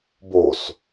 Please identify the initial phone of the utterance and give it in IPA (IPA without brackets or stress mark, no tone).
b